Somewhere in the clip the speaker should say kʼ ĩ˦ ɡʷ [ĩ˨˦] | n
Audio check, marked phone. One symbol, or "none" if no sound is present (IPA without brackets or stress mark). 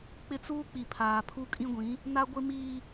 ĩ˨˦